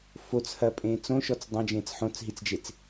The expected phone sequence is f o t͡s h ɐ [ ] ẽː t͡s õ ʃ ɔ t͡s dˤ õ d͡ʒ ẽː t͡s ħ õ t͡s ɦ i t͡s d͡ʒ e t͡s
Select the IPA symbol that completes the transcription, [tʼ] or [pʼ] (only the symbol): pʼ